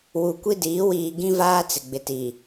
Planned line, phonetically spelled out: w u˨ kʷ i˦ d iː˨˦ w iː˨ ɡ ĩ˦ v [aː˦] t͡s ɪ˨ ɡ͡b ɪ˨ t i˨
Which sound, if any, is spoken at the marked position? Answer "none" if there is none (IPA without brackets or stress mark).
aː˦